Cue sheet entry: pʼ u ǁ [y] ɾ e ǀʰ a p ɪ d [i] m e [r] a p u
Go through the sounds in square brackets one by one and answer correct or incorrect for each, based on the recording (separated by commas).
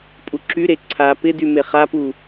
correct, incorrect, incorrect